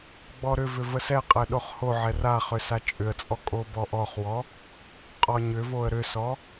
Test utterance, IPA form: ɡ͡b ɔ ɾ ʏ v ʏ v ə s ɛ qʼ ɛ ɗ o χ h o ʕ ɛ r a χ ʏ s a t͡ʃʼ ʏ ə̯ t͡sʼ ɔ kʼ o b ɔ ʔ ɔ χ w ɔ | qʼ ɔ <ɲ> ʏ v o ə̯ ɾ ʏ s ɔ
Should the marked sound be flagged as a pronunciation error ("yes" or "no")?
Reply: no